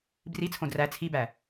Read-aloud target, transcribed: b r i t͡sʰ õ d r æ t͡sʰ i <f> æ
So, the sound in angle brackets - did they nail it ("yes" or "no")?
no